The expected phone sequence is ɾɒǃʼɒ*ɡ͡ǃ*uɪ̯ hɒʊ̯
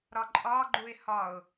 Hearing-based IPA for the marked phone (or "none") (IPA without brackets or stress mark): ɡ͡ǃ